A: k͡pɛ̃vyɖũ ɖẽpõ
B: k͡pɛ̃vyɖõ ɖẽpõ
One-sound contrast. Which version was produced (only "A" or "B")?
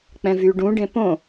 A